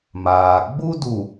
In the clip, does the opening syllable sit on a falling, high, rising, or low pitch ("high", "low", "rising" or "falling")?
low